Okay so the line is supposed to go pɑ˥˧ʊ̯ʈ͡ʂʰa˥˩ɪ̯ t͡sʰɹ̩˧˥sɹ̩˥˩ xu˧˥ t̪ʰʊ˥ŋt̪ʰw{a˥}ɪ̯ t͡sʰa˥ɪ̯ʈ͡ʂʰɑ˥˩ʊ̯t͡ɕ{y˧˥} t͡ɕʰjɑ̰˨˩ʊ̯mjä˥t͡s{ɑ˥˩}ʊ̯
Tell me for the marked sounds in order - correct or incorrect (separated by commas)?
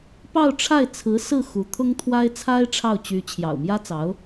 correct, correct, incorrect